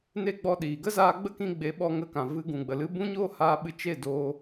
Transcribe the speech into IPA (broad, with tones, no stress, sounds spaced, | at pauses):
n e˦ ɡ͡b ɔ˧ ɗ iː˨ ɡ ə˦ z aː˧ ɡ͡b ə˦ k ĩ˧ ɡ͡b e˨˦ ɓ ɔ˧ ŋ ə˧ k ã˨ v ɨ˧ ɡ ũ˨ ɡ͡b ə˨ l ɨ˦ b ũ˦ ɲ oː˦ h aː˧ ɓ ɨ˧ t͡ʃ e˦˨ d oː˧